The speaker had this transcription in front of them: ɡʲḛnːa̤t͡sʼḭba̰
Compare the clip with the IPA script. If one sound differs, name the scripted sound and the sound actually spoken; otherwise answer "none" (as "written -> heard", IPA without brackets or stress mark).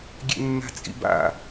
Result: none